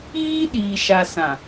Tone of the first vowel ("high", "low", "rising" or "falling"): high